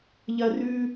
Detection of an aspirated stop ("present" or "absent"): absent